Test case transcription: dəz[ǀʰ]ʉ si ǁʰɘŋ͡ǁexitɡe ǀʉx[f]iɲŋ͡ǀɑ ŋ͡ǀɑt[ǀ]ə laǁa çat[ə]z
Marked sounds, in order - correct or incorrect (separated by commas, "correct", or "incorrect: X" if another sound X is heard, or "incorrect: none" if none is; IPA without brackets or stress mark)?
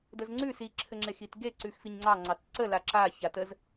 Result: incorrect: ŋ͡ǀ, correct, correct, correct